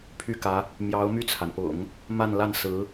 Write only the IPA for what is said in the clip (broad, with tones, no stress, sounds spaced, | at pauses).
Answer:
pʰ y˥˩ k ä˧˥ | m j ɑ˧˥ ʊ̯ m y˥˩ t͡sʰ a˩ n p ʊ̰˨˩˦ ŋ | m a˥˧ n l a˥˩ n s ɹ̩˧˥